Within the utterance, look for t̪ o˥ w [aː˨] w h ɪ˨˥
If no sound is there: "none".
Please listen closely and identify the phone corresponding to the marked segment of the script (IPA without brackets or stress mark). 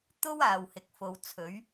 aː˨